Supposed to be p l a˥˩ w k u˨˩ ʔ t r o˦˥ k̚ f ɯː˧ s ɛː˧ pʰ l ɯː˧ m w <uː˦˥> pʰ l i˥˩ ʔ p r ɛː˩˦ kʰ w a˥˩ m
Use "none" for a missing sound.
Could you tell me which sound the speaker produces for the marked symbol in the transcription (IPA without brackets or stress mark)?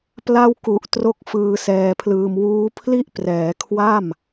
uː˦˥